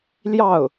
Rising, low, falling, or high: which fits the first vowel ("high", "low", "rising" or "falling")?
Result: falling